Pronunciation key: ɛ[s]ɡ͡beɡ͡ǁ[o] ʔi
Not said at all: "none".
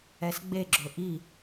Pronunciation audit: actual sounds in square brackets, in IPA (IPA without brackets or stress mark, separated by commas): s, ɵ